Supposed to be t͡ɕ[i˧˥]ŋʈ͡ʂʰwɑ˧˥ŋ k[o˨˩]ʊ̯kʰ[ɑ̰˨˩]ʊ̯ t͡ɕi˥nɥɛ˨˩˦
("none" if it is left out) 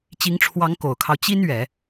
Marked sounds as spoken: i˧˥, o˨˩, ɑ˦

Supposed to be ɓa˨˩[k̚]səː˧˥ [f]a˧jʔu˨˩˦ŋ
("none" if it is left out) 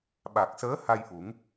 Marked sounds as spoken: k̚, h

